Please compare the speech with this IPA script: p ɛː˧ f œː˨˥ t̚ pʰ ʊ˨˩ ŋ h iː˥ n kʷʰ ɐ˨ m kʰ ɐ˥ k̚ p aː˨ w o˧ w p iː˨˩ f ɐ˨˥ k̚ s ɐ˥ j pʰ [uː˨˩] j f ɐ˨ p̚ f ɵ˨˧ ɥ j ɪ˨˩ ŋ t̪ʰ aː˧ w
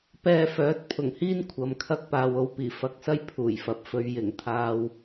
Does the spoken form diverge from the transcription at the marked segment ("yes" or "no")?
no